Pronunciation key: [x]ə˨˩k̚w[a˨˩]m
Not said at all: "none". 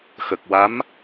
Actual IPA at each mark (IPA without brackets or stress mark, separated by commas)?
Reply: x, a˧˥